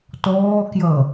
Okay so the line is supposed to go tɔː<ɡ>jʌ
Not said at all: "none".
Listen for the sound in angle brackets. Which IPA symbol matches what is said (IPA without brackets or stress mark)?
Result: k